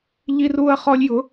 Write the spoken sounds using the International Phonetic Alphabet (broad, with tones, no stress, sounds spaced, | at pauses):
ʎ i˥ r uː˥ ɐ̯ χ ɔ˥ lʲ j ʊ˧˥